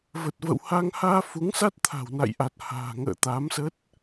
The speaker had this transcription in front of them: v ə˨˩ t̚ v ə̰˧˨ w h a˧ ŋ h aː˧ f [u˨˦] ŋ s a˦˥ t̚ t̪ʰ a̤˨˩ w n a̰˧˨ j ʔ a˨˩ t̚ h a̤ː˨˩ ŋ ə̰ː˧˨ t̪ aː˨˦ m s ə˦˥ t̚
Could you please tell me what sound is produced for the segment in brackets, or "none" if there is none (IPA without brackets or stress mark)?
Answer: u˨˦